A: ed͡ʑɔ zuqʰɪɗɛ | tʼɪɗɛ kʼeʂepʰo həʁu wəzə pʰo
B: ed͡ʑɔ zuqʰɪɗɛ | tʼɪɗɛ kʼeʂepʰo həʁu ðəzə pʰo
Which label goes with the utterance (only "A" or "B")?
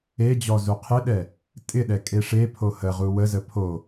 A